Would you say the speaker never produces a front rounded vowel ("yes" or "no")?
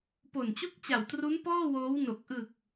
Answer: yes